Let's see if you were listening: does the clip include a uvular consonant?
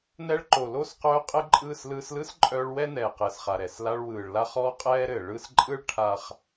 yes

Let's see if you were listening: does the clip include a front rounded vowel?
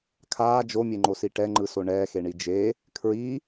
no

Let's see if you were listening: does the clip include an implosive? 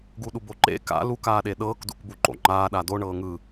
yes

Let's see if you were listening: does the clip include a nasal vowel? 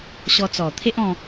yes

